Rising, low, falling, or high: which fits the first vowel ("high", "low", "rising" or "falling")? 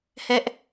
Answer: high